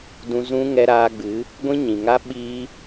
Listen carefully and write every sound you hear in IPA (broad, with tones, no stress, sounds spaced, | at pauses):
d ũ˧ z ũ˦ ŋ ɛ˧ ɾ aː˧ ɡ͡b ɨ˨˦ | ɡʷ ĩ˦ ɲ ĩ˨ ŋ a˦ ɓ iː˧